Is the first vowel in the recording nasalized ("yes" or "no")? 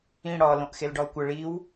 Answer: yes